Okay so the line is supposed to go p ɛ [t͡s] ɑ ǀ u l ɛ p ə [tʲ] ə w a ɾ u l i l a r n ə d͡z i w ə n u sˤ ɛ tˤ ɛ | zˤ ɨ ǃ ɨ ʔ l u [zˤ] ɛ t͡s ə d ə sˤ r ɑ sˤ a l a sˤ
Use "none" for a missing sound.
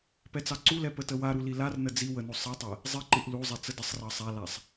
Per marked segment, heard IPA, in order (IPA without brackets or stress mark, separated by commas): t͡s, t, zˤ